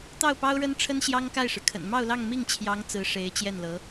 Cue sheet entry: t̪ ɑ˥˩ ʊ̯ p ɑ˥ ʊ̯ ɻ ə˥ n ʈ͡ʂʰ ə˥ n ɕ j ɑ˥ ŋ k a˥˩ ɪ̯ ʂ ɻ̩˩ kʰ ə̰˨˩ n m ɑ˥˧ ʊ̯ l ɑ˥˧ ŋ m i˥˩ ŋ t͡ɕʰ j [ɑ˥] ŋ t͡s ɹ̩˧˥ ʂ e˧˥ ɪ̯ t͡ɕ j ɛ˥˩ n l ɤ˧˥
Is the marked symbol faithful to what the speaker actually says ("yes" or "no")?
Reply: no